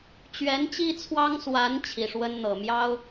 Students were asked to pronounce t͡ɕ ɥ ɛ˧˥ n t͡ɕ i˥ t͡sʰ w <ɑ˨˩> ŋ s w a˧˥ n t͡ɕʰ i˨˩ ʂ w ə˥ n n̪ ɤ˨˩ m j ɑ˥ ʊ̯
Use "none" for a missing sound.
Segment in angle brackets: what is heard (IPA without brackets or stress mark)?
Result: ɑ˥